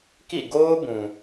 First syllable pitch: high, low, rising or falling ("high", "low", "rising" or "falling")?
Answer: falling